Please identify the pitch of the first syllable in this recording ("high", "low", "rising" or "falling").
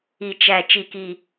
low